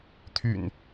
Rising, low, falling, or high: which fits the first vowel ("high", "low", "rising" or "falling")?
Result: low